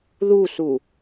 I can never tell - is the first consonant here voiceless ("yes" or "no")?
no